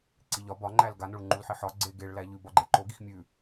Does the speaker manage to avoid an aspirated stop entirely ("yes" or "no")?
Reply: yes